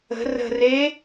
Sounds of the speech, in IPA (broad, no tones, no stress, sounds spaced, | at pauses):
ə̤ r ə̤ r e